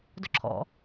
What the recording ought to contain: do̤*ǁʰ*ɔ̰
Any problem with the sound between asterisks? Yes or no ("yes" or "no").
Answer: no